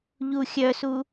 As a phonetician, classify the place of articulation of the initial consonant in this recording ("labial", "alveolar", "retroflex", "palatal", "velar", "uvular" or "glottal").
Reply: palatal